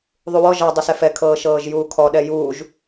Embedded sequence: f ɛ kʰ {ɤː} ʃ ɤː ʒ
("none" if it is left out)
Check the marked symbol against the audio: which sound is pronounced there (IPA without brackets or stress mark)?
ɤː